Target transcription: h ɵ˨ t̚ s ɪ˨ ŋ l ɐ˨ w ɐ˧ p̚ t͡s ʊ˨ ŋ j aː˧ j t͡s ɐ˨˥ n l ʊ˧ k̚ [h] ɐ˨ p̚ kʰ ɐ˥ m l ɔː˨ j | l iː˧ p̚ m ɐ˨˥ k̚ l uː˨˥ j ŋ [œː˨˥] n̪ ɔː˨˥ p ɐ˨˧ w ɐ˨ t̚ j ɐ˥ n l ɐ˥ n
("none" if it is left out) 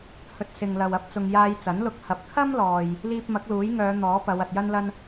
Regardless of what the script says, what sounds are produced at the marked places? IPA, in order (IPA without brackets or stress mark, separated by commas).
h, œː˨˧